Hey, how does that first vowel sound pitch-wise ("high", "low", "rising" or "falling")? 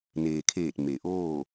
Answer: low